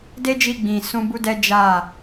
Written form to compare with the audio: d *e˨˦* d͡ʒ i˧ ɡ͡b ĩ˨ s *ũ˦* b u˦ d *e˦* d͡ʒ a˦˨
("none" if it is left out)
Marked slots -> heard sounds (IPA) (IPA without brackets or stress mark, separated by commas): e˦, ũ˧, ɛ˦